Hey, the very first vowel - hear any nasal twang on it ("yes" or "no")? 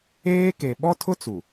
no